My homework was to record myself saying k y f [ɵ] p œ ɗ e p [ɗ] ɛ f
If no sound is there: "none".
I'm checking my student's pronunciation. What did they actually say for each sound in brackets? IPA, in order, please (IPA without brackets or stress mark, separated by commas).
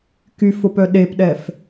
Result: o, ɗ